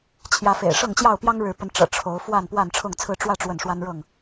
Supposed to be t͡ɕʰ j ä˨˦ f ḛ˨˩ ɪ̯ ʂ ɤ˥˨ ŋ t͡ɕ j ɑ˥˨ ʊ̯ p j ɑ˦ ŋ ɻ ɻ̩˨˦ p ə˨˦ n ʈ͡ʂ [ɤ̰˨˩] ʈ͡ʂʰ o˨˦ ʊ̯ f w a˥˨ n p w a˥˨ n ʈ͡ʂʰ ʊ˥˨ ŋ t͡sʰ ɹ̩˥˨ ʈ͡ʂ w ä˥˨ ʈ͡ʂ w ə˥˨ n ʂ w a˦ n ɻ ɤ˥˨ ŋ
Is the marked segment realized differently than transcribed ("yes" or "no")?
no